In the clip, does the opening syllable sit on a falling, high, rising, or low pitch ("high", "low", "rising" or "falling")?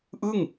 falling